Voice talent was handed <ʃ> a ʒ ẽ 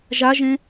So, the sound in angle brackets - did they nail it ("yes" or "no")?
no